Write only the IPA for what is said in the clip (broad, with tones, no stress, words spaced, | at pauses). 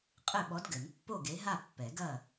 qʼɘ˥˨ ɓɔ˨˥dɡɘ˨˩˦npːo˥˨ ɡe˨˥ɦa˥˨pːɛ˨˩˦ɡɐ˥˨